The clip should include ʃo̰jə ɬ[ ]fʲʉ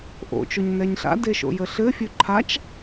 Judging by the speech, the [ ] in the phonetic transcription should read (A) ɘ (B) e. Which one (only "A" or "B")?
A